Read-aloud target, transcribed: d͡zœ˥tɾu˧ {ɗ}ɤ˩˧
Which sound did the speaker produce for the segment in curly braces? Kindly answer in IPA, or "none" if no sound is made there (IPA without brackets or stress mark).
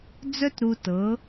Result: t